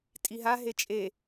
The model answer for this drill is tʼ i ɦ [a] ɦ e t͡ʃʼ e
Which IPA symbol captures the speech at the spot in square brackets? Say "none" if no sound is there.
a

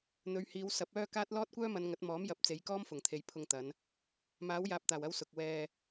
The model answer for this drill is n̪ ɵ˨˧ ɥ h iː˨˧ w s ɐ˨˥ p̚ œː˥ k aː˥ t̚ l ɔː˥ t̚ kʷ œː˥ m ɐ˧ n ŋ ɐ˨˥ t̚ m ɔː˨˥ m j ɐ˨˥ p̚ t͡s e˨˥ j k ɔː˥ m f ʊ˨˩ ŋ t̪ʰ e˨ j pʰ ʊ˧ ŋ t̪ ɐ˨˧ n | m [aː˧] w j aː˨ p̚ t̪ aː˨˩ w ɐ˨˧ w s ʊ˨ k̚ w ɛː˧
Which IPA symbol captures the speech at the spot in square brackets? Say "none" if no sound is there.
aː˨˥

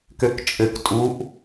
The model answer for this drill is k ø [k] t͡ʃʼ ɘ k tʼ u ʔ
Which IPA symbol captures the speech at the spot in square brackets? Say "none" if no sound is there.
k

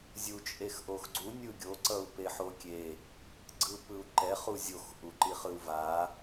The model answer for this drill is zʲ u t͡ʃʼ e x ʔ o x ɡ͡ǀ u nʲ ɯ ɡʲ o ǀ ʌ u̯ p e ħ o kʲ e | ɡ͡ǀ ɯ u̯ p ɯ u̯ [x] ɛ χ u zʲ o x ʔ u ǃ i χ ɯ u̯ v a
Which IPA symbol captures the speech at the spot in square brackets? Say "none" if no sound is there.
ǃ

